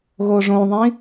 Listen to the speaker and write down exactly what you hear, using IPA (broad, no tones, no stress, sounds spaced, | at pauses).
ɣ oː ʐ õː ðˤ ĩ